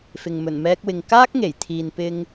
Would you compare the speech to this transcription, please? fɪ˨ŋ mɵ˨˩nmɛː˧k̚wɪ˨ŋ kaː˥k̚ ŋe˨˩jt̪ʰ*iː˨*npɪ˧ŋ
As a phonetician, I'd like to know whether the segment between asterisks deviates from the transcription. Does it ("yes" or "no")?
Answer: no